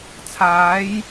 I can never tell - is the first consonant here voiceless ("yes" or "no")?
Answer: yes